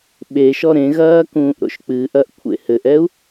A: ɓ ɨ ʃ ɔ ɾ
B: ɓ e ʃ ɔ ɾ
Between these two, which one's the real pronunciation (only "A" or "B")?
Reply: B